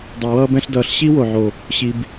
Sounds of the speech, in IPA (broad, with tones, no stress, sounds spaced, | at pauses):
dˤ ɛ˨ w ʌː˦ b ɛ̃˦ ɬ d ʌː˨ ɬ ɕ i˦ w o˨ ʕ o˨ | ɕ i˨ b